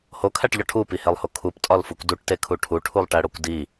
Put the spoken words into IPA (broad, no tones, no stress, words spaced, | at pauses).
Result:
hokʰæʈʎɒ ʈʰupihelˠho kʰuptʼɒlfukʷ duʈtekʰu ʈʰuʈʰulˠʈæɽokʷ di